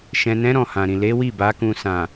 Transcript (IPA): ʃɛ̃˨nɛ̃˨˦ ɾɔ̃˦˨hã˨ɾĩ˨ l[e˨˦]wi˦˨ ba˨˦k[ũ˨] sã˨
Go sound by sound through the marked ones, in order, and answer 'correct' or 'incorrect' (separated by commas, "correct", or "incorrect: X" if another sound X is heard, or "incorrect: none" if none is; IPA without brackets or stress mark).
correct, incorrect: ũ˧